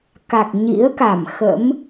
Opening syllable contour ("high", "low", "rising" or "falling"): low